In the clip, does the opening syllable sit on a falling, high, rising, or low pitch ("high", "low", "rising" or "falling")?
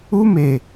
high